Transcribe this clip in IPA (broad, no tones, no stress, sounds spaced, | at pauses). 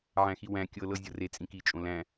ʕ æ̃ x i w æ̃ kʲ ɤ l ɤ zʲ ɤ r e t͡sʼ ĩ k i t͡ʃʼ õ l æ̃